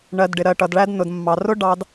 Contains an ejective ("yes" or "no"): no